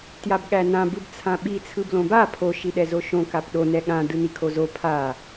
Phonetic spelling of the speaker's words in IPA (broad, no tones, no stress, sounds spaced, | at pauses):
t j a b ɠ æ n ã b ɯ b t͡sʰ ã ɓ i t͡sʰ ɯ b l õ b a pʰ o ʃ i ɗ ɛ z o ʃ õ k a p ɗ o n ɛ ɠ ã d ɯ n i kʰ o z o pʰ a